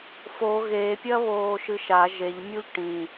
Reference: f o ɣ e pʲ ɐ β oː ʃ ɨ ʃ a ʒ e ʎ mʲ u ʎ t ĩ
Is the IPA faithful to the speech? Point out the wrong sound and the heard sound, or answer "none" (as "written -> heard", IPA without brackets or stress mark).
t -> ʈ